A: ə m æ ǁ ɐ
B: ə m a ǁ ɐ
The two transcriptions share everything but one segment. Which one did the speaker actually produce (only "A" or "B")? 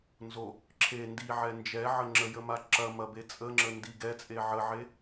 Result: B